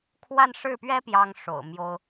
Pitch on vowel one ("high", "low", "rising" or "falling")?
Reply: falling